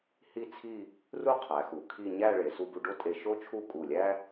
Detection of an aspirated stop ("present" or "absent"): present